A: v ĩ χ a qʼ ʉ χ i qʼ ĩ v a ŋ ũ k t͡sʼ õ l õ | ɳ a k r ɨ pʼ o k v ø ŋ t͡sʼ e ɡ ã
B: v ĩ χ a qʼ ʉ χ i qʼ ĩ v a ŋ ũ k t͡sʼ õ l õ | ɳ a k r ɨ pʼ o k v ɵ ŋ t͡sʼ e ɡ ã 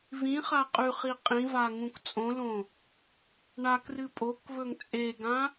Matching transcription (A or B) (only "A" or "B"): B